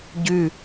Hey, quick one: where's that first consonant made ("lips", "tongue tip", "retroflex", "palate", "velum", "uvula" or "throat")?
palate